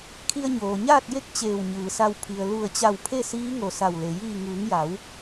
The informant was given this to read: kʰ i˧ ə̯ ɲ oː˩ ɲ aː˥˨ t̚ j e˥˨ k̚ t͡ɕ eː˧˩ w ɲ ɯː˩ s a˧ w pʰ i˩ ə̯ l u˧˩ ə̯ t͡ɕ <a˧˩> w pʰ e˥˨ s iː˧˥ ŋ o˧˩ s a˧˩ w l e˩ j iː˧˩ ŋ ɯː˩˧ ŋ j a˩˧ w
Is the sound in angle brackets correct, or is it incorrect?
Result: correct